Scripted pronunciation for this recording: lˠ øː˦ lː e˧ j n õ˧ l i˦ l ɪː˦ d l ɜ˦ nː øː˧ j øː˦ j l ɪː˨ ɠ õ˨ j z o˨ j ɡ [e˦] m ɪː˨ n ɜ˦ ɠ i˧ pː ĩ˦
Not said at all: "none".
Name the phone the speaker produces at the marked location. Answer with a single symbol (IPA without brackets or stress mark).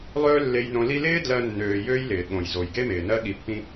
e˦